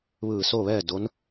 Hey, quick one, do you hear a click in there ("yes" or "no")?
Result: no